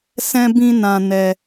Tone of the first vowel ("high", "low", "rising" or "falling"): high